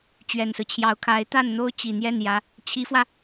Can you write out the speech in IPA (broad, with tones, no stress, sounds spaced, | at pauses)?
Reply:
t͡ɕ ɥ ɛ˨˩ n s ɹ̩˦ t͡ɕʰ j ɑ˧˥ ʊ̯ kʰ a˧˥ ɪ̯ t̪ a˥˩ n n̪ o˥ ʊ̯ t͡ɕ i˨˩ n̪ j ɛ˥˩ n j ä˧˥ | t͡ɕʰ i˧˥ f w ä˧